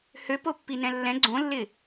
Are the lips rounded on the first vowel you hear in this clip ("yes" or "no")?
yes